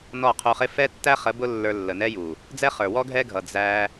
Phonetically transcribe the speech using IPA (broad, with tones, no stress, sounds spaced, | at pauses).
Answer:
n ɔ˦˨ qʰ u˧ χ ɪ˦ f ɛ˦ tː æ˦ χ ə˨˦ b ʊ˦ lː ə˞˧ lː ə˨ n ɛ˦ j u˨ | d͡z ɛ˦ χ ə˞˨ w ɔ˦ ɡʱ ɛ˦ ɡʱ ʌ˨ d͡z æ˧